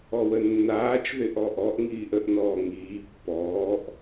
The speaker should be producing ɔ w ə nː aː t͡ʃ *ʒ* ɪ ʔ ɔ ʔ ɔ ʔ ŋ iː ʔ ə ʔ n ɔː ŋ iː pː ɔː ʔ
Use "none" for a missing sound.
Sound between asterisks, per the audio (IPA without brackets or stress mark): ð